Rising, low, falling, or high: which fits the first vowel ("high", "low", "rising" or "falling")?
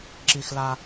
high